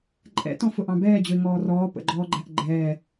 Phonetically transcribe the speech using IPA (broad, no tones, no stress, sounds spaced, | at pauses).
ǃʼ ɛ̰ t ɔ̃ f ʊ ʔ ɑ̃ b ɛː d͡ʑ ʊ ɪ̯ ŋ ɔː r ɔː p ə̰ ɡ͡ǃ ɔː ɡ͡ǃ æ ʔ ɡ͡ǃ ɛː